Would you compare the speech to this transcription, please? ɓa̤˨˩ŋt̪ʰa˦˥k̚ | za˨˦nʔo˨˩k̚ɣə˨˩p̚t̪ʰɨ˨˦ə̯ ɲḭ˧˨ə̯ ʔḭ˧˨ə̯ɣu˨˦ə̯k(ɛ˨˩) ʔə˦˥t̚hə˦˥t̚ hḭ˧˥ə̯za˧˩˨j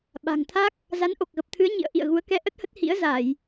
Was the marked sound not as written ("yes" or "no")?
yes